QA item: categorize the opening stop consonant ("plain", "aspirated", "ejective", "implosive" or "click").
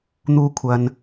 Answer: aspirated